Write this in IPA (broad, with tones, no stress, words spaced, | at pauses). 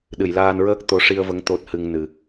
ɗɨ˨˩˨jlaː˧nɹəː˦˥k̚ t̪o˧˥ʂi˧ə̯və˧˥ŋ t̪o˦˥t̚hɨ˧ŋnɨ˨˩